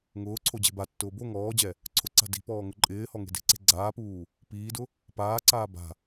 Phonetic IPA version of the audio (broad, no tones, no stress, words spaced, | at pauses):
ŋʊː ǀʰod͡ʑe̤batːʊː bo ŋɔːd͡ʑɛ | ǀʰʊǀa̤ di̤pɔː ŋʊǃʼɪːhɔ ŋe̤de̤ǀe̤ ɡ͡ǀaːpuː | piːdʊ | paːǀaː ba̤